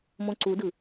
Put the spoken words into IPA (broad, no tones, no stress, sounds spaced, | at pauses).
m õ ǀ u d ɯ